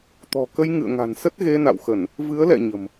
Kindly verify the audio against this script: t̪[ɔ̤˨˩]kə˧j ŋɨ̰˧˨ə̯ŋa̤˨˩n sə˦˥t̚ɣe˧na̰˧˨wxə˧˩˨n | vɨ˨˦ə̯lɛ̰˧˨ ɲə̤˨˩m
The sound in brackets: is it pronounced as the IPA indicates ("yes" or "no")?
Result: yes